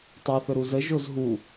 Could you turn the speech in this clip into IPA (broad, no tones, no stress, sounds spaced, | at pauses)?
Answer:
tˤ a θ ɵ ɾ u z ə ʒ o z ɦ u